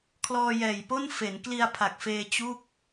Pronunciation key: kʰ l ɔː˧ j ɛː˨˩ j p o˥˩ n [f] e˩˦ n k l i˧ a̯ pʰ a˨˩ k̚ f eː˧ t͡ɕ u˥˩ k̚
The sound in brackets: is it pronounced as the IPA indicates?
yes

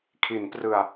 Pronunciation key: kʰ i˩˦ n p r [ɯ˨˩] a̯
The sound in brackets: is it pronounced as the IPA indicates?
yes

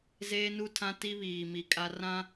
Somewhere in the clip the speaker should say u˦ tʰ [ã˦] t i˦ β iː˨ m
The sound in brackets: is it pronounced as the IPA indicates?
yes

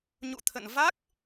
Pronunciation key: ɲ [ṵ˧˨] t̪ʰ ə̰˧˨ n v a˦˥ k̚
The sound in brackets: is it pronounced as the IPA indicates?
yes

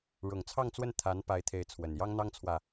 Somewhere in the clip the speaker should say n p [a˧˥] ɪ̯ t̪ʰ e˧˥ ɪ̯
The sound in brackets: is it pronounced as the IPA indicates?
yes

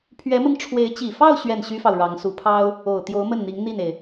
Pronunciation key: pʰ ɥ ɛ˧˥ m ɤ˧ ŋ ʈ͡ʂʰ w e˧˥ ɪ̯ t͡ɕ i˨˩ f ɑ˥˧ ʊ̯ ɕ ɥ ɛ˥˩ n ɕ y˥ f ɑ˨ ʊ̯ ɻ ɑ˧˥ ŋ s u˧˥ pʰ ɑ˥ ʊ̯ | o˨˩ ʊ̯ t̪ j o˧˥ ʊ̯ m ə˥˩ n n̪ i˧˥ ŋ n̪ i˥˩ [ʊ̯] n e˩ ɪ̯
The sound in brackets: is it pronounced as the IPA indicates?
no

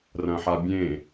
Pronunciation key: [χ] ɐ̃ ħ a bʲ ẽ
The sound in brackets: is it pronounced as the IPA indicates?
no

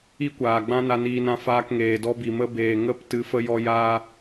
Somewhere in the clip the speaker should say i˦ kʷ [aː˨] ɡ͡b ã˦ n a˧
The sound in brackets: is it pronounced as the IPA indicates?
yes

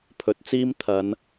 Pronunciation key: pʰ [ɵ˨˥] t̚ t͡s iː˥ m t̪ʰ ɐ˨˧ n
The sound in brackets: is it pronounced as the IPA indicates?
yes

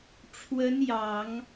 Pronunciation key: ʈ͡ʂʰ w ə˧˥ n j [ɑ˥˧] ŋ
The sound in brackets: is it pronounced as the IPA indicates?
no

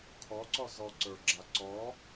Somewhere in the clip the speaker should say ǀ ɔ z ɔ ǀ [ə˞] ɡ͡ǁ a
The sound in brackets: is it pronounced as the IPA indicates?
yes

